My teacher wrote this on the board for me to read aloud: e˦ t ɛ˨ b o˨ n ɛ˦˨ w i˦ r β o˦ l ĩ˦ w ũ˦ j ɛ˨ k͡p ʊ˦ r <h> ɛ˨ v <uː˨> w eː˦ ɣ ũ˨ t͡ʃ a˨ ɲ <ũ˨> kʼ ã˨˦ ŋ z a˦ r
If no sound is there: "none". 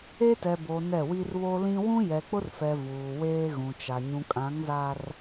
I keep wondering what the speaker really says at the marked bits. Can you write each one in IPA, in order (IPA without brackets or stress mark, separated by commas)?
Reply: f, uː˨, ũ˨